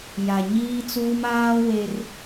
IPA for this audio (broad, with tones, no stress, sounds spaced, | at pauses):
j a˨ ɲ iː˦ t͡s uː˦ m aː˦ w e˦ r